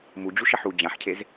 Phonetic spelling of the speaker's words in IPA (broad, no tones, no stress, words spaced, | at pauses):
mud͡ʑuʃɐħ u d͡ʑãħcʰez